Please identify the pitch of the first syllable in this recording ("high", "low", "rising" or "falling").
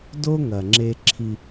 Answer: high